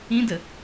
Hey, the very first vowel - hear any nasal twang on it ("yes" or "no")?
yes